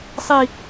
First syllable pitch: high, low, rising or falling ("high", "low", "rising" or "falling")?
high